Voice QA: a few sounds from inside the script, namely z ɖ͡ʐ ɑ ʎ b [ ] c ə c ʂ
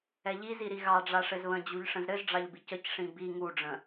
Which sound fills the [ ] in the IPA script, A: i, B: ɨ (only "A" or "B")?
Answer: A